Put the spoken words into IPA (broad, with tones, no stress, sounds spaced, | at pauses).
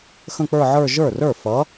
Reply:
x ə̃˥˧ k͡p ə˞˥˧ ʕ ə˞˥˧ ʒ ə˞˥˩ r ə˞˥˩ f ʌ˨˦